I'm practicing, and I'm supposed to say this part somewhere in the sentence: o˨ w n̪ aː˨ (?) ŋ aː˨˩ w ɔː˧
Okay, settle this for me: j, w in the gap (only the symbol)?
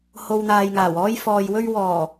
j